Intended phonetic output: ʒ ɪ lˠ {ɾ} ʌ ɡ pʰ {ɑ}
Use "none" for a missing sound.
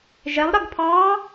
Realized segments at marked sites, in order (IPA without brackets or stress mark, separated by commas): ɾ, ɑ